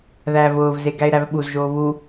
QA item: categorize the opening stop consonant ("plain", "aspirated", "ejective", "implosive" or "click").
plain